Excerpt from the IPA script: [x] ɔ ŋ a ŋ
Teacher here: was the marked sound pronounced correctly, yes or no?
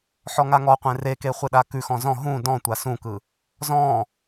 no